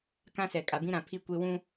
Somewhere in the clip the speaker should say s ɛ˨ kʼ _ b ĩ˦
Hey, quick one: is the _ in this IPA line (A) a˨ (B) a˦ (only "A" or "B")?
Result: A